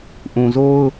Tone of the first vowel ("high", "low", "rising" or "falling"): low